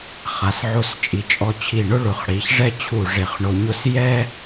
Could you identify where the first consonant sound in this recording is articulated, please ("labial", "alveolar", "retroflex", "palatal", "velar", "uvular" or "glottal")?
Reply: uvular